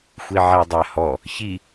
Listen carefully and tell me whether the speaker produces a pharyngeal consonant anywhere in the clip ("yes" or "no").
yes